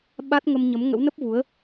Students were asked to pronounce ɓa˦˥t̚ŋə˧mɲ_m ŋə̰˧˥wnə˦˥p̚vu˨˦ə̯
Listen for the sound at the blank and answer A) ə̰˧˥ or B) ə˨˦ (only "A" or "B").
B